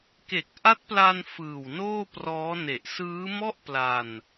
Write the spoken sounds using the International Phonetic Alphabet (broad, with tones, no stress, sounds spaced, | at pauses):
k e˨˩ k̚ ʔ a˦˥ t̚ p l a˧ n f ɯː˨˩ w n oː˥˩ p r ɔː˦˥ n e˨˩ ʔ s ɯː˦˥ m ɔ˥˩ ʔ p l a˧ n